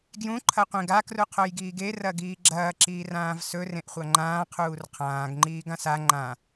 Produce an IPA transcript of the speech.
ɡ j ũ ǃʰ ɐ qʷ ẽ ɡ a k r u qʰ o j ɡ iː ɡ e r ɐ ɡ iː ɡ͡ǁ ɐː ǁ iː r ãː v s ɵ r ẽ ʔ χʷ a ŋ͡ǃ ãː qʰ uː r qʰ ãː ɡ ŋ͡ǃ iː ɡ ã s a ŋ͡ǃ ã

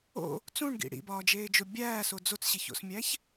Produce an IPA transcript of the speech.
o̰ | t͡s ũ ɳ ɡ ḭ ɽ ḭ b ɒː d͡ʒ eː d͡ʒ o bʲ æː s o d͡z o t͡s ɕ i ç o̰ s mʲ æ ç

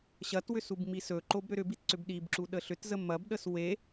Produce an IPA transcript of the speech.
ɕ ɐ t w ʏ s u b m i s ɵ ǃ o b ɾ ʏ ɾ ʏ b i t ǀ ʏ b ɗ i b ǁ u ɗ ə ɬ ʏ t z ə m ɐ b ɗ ə s w e

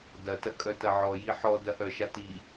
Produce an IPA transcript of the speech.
d ɐ t ɐ kʼ œ t ɐ ʕ ɔ j i ħ ɔ d ɐ ʔ œ ʃ a t i

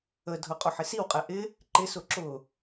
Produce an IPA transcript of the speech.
ə dʱ ʊ qʼ ʊ ħ ɪ s i w qʼ ɛ ʔ ɪ | ǃ ɪ s ʊ ǁ ʊ

